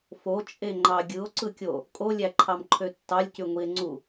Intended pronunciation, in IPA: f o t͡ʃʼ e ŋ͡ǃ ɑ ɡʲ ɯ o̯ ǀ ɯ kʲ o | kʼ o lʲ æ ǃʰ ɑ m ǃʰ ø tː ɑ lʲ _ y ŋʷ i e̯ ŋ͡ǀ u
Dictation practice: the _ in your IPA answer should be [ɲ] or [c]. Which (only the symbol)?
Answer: c